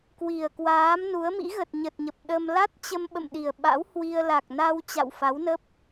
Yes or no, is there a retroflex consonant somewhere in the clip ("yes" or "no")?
no